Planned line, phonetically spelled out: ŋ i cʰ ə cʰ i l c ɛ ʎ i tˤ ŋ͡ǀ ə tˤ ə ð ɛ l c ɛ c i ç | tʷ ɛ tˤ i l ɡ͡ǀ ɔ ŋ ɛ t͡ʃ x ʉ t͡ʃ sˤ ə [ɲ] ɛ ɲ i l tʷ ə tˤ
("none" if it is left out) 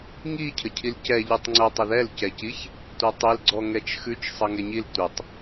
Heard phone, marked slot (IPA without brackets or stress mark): ŋ